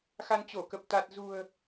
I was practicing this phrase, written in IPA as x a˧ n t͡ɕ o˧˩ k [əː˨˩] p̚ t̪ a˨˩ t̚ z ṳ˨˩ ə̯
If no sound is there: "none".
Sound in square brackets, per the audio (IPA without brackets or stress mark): ə˨˩